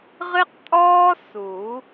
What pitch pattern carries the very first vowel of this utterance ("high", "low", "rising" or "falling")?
high